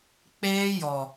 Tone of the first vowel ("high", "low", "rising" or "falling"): high